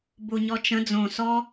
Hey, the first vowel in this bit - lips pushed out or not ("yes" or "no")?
yes